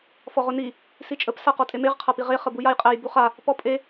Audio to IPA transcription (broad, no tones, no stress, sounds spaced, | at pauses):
f ɔ ʁ ʊ n i | s i t͡ʃʼ ə p s a q ɔ tʼ e m e ʁ qʰ a p i ʁ e χ ə b u j a j qʼ æ j b u χ a | p ɔ pʼ e